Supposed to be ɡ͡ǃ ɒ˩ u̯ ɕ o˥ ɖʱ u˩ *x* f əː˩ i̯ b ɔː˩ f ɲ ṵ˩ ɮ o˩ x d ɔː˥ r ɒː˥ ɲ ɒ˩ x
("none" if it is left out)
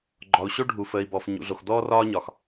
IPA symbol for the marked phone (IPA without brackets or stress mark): none